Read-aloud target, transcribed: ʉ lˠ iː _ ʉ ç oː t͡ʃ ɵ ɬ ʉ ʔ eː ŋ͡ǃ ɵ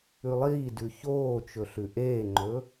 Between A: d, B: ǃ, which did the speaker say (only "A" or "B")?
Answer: A